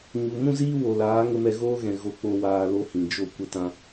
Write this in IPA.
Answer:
ɲ u˨ m ũ˦ z iː˦ w o˨ l aː˨˦ ŋ ə˧ m ɛ˧ ɣ oː˦ ɣ ɛ̃˨ ɣ o˧ k͡p o˧ w aː˧ l o˦ h ĩ˨ d͡ʒ o˦˨ kʷ ə˧ t ã˧

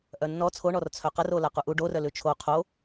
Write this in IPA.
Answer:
ʔ œ nː ɔ t͡sʰ o ɳ ɔ r t͡sʰ œ q ə r o l a q u ʔ u ɖ o r œ l ʉ t͡ʃʰ o qʰ o

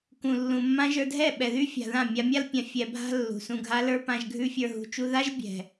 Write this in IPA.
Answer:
k ũ˨ lː ũ˨ mː ã˦ ʒ ə˞˧ dʱ ɛ˦˨ ɓ ɛ˨ ð y˦ fʲ a̤˨ ð ã˦˨ mʲ a˧ mʲ a˦ l pʲ ã˧ fʲ ɛ˨ bʱ a̤˧ lː ṳ˨ s ũ˧ ɡʱ a˦ l ə˞˦ p ã˧ ʒ ɡʱ ʉ˦ fʲ ə˞˧ ɦ ṳ˧ t͡ʃ u˦ ð a˦ ʒ bʲ ɛ̤˨

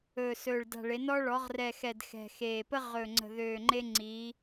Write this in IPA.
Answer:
ɵː˨˩ s ɵː˨˩ ɭ d a̤˨˩ ɭ e˩˧ n ɔ˦ ɭ ɔ˩˧ ʁ r ɛ˨˩ x ɛ˨˩ d x ɛ̤˨˩ x eː˨˩ p ə˦ ʁ ɵ˨˩ ŋ͡ǀ ə̤˨˩ ð øː˨˩ ŋ͡ǃ e˦ ŋ͡ǀ iː˩˧

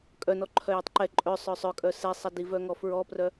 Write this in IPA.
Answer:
kʼ œ n ɔ ǃʰ œ j i tˤ ǃ ɛ ǃʼ œ sˤ œ sˤ œ kʼ œ s ɛ sˤ ɛ d i v œ ŋ ɔ f ɹ ɔ p r œ

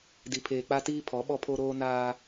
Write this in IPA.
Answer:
d i˨ pʰ eː˨ k͡p a˦ t iː˦ pʰ ɔ˨˦ ɓ ɔ˦ pʰ o˦ ɾ oː˦ n aː˦

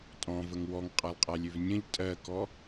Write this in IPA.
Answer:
tʼ ɔ̃ v ə ŋ w ɔ ŋ qʼ a lˠ qʼ a lʲ ø v nʲ ə̃ ʎ tʼ ɜ k ɔ

